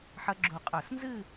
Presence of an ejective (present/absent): present